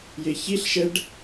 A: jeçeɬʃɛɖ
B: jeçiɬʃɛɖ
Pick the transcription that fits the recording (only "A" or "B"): B